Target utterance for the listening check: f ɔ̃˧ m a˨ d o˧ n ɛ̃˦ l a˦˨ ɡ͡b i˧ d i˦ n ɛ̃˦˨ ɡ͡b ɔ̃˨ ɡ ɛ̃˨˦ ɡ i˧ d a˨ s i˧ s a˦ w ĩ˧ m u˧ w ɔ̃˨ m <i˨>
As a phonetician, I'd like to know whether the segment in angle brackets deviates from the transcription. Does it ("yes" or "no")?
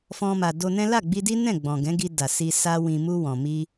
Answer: yes